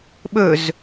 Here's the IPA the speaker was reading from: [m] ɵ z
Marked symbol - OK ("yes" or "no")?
no